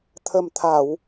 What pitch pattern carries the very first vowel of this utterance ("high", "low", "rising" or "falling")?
low